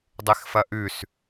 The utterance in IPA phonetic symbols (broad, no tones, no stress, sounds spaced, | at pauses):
dˤ e x f ɐ ʔ ʉ s